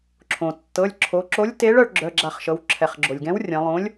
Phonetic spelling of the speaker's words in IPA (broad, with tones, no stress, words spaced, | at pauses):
ǁʰõ˩tːɤ˩˧˩lʲ ǁʰo˩˧ǁo˨˥lʲ te˨˥ɭœ˩˧ɭ ɡ͡ǁœ˩˧˩ɡ͡ǁa˧˩χʃɤ˩˧w ǁʰɛ˩χɡ͡ǁo˩lʲɡɛ̃˨˥w rʲɐ̃˩˧lˠõ˨˥lʲ